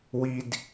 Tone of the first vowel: low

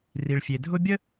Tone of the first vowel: low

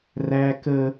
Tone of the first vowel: high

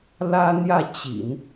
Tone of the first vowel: high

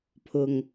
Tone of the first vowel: low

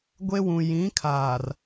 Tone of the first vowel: high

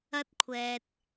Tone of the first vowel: high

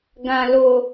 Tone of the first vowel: low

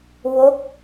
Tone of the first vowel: falling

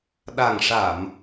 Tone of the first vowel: low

